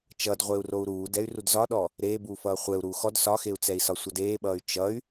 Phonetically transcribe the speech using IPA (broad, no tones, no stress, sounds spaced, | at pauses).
t͡ʃ ʌ d ʁʷ e u̯ r o u̯ ɾ uː d ɛ y̯ r u d z ɒ ɗ ɔ | ɾ eː b uː f ʌː χʷ ɛ u̯ ɾ uː x ɔ d s ɒ x e u̯ t͡s ɛ i̯ s ɒ sʷ ʌ d eː ɓ ʌː y̯ t͡ʃ ʌ y̯